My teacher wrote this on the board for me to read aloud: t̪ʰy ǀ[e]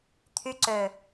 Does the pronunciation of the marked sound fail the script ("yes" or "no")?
yes